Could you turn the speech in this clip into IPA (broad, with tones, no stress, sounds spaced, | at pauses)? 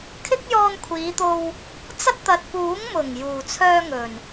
kʰ ɪ˥ k̚ j ɔː˧ n kʷʰ iː˨˧ t̪ o˧ w | t͡s ɐ˥ t̚ t̪ ɐ˨ t̚ p uː˨˥ ŋ m ʊ˨˩ ŋ j uː˨˩ t͡sʰ œː˧ ŋ ɵ˨˩ n